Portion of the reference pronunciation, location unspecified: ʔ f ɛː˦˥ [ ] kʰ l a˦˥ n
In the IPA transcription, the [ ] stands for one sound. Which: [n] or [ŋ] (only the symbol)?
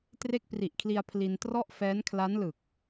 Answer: n